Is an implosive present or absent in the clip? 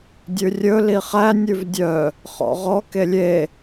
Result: absent